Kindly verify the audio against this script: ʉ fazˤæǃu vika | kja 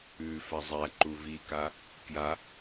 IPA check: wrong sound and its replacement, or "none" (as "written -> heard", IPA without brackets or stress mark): none